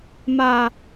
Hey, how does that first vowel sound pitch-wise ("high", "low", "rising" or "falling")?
falling